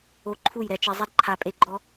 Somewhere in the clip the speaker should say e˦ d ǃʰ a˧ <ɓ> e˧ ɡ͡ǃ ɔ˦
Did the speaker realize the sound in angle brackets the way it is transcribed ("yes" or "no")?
no